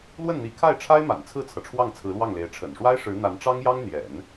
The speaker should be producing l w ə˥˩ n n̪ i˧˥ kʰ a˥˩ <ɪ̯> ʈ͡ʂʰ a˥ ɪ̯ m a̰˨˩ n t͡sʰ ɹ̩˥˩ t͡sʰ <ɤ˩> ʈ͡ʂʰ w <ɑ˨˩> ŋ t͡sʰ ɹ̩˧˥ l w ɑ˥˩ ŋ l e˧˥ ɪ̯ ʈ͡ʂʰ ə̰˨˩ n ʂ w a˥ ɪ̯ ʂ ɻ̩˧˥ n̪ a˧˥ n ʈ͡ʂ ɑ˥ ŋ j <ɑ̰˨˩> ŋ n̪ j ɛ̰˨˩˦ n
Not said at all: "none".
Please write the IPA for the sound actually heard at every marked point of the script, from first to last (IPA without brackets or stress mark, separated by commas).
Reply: ɪ̯, ɤ˩, ɑ˥˩, ɑ˥